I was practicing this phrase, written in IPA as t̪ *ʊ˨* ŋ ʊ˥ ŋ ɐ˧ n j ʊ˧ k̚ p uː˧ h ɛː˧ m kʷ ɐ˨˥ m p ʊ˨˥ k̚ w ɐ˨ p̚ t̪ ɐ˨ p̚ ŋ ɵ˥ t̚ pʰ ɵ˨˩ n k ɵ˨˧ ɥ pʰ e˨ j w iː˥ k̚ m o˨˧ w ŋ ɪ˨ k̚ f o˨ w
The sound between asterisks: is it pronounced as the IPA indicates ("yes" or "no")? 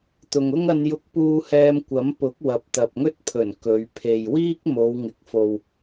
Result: yes